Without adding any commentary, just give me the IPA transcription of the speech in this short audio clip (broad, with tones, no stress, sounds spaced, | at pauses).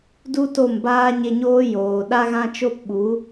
d u˦ t o˦˨ m b aː˦ ɲ e˧ ɲ oː˦ j oː˨ ɗ a˦ ɣ ã˦ t͡ʃ o˦ p ɓ u˨˦